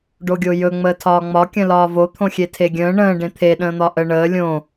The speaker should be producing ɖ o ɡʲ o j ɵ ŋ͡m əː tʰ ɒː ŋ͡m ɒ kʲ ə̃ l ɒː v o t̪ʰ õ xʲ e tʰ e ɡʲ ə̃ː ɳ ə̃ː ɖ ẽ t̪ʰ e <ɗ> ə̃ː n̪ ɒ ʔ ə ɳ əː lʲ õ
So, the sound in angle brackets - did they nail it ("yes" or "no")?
yes